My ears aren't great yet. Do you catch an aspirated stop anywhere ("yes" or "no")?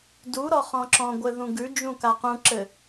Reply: no